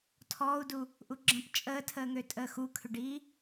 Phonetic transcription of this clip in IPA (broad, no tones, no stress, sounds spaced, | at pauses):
tʰ ɔː u̯ d u | ʔ u ɡ͡ǁ ə̃ p t͡ʃʼ əː tʰ əː ŋ ø tʼ əː x u kʰ ʏ ɖ iː